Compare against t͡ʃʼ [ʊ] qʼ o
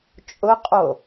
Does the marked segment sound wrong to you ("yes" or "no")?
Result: no